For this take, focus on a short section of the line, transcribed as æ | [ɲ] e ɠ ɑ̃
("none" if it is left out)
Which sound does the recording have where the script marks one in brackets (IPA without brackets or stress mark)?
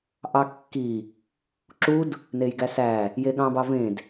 j